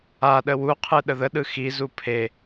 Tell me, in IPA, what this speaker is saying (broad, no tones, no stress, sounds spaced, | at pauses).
a ɗ ə w u qʰ ɯ ɗ ə ð ə ɗ ɯ x i z u pʰ e